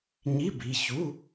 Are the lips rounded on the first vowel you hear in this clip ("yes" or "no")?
no